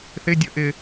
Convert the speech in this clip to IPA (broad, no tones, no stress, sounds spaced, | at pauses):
θ ɪ dʲ ə ʔ ɪ